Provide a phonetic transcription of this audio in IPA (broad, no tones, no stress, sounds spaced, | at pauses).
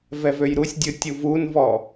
v ɛ v ø j ɾ u sʲ dʲ ɯ tʲ u v u n v ɔ